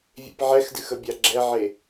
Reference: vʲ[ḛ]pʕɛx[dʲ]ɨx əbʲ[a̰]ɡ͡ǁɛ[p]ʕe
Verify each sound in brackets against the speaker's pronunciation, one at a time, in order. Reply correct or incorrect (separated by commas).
correct, incorrect, incorrect, incorrect